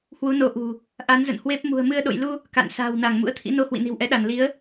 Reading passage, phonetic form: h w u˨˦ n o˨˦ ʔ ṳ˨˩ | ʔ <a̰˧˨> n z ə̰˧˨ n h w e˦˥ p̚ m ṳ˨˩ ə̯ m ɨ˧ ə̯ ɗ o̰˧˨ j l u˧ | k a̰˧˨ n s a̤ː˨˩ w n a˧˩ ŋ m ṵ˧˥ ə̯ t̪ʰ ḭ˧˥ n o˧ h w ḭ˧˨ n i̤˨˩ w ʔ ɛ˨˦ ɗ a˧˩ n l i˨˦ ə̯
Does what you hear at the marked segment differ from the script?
yes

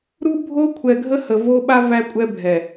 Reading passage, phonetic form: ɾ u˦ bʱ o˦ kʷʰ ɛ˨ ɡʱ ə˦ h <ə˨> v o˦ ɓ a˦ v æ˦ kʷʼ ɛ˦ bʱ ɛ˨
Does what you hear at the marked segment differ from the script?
no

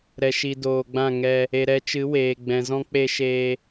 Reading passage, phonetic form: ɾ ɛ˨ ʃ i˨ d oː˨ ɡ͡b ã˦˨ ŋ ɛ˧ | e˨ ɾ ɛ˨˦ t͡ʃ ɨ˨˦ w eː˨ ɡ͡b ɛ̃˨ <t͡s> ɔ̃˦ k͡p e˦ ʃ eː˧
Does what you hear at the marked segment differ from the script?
yes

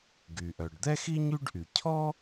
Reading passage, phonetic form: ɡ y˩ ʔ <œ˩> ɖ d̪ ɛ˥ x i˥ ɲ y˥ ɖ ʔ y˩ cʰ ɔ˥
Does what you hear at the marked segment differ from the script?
no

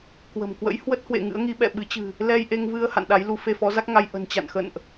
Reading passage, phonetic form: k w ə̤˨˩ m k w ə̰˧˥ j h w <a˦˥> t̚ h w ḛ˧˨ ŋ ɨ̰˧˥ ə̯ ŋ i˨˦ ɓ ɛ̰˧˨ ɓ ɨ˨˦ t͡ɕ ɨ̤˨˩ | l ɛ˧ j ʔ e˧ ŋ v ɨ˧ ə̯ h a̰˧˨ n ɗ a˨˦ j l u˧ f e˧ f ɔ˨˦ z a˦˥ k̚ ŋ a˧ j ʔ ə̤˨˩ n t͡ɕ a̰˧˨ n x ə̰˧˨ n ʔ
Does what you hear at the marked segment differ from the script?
yes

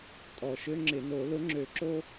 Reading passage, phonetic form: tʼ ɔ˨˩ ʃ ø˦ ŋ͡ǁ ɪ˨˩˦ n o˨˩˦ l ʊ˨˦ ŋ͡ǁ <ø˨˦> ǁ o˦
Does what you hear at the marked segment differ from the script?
yes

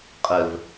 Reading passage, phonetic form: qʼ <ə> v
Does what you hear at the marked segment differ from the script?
no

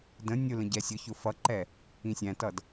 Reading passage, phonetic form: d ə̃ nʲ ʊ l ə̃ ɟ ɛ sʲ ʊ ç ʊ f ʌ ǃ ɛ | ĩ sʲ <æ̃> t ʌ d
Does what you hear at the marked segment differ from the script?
no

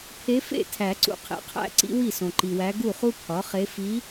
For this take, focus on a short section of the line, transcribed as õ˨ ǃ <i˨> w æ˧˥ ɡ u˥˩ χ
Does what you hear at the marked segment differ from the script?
no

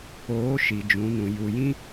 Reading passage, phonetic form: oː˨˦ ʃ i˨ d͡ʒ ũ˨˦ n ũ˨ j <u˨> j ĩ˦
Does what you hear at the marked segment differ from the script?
no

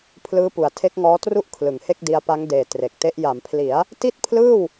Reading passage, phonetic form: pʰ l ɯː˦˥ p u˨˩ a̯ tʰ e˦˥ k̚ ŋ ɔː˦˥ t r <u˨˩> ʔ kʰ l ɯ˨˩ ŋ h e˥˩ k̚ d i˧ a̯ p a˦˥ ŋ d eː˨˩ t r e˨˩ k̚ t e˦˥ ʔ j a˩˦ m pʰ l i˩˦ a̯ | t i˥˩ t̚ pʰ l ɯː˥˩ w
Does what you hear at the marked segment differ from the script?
yes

